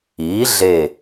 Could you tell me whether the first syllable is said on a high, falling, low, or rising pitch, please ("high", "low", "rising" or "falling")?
rising